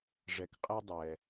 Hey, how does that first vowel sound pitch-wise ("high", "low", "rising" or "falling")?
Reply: low